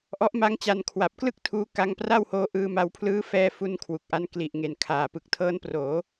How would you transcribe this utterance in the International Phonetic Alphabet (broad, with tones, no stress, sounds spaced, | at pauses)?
ʔ ɔ˦˥ ʔ m a˦˥ ŋ t͡ɕ a˧ n kʰ w a˨˩ p̚ k l ɯ˥˩ k̚ tʰ uː˦˥ k a˦˥ ŋ p r a˥˩ w h oː˦˥ ʔ ɯː˧ m a˧ w pʰ l ɯː˦˥ f ɛː˧ f u˦˥ n kʰ w u˨˩ k̚ ʔ a˧ n k l i˨˩ ʔ ŋ e˨˩ n kʰ aː˨˩ p ɯ˨˩ k̚ tʰ ɤː˦˥ n p r oː˩˦